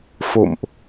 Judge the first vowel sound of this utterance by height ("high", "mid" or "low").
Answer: mid